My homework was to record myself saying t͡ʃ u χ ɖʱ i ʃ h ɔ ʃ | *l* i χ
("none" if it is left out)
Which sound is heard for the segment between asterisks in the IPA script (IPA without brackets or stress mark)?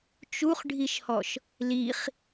l